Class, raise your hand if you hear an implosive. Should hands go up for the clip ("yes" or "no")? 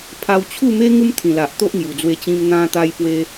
no